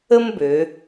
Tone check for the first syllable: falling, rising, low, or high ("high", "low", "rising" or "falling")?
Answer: high